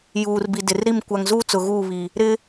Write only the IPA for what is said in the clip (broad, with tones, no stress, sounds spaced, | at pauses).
j uː˨ r b i˨ d ɪ˨ r ɾ i˦˨ m kʷ a˨ ŋ z uː˦ t͡s ʊ˨ ɣ uː˦˨ β i˨ | ɾ ɪ˦